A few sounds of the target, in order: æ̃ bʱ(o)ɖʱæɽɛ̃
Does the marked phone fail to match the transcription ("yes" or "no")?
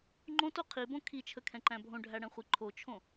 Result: yes